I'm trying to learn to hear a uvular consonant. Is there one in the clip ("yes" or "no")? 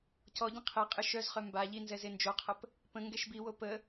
yes